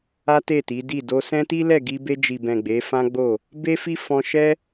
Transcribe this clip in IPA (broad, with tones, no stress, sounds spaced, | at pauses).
a˦ t e˦˨ t i˨˦ d i˦˨ d o˧ s ɛ̃˦ t i˦ l ɛ˦˨ ɡ i˧ b e˧ d͡ʒ i˨ b ɛ̃˨ ɡ͡b e˨˦ f ã˦ ɡ͡b o˦˨ | b e˦ f i˦ f ɔ̃˧ ʃ ɛ˦